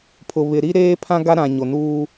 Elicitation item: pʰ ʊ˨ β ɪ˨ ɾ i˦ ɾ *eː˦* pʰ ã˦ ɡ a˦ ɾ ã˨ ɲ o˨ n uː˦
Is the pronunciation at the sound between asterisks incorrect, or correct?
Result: correct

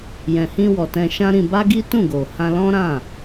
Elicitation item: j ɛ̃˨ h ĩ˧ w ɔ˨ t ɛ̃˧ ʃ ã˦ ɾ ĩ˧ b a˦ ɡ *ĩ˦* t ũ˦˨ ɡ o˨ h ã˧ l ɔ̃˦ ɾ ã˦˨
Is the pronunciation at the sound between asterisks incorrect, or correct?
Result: incorrect: i˦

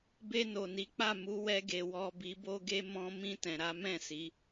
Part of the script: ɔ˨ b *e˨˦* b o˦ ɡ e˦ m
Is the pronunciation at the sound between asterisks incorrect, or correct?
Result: incorrect: i˨˦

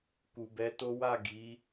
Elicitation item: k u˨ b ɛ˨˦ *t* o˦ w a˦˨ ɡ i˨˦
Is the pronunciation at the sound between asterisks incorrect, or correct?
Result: correct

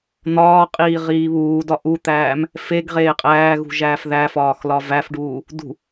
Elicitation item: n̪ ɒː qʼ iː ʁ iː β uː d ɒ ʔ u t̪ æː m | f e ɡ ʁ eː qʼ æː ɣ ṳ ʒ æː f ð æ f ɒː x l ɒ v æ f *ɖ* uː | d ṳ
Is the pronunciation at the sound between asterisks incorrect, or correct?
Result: correct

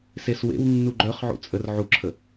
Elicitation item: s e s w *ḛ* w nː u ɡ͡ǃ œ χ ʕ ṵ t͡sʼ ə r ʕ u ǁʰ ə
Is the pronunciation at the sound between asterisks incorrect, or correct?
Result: correct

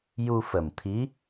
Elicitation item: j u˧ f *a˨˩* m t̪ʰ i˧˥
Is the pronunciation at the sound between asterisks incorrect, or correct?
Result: incorrect: ə˨˩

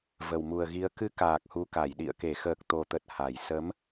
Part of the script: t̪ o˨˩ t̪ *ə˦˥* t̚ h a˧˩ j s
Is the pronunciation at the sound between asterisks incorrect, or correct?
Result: incorrect: ə˨˩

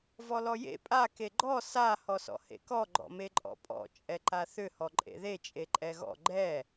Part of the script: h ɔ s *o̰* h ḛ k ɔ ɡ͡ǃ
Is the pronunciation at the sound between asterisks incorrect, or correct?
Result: incorrect: ɔ̰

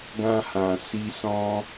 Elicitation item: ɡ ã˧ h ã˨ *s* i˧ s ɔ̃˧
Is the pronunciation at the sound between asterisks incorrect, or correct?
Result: correct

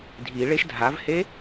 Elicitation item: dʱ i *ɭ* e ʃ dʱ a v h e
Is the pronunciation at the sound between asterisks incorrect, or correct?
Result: correct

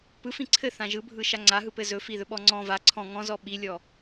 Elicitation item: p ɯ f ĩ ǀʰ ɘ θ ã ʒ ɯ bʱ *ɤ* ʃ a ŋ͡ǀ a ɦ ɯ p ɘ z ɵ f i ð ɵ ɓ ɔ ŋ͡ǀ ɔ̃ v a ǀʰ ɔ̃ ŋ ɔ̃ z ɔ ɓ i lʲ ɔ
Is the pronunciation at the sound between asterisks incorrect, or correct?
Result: incorrect: ɯ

